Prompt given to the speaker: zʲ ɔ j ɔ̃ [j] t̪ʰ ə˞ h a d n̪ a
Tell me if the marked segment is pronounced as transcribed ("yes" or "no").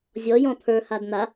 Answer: no